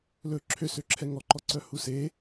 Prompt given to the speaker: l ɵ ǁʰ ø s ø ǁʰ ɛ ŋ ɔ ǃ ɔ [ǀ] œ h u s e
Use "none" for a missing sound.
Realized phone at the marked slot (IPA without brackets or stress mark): ǀ